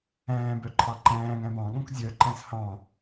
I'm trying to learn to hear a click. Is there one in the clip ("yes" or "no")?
yes